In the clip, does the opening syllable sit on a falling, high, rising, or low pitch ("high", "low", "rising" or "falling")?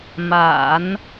low